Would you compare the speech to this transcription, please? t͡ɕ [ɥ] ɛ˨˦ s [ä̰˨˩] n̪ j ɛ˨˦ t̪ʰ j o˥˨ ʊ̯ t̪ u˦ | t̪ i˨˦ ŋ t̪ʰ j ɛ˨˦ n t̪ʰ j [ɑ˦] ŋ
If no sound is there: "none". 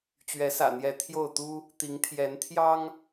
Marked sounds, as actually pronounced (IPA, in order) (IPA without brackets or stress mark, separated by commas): ɥ, ä̰˨˩, ɑ˦